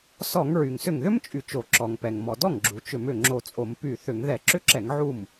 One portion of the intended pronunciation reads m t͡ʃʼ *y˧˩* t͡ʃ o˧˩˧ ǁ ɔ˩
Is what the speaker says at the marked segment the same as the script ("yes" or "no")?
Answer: yes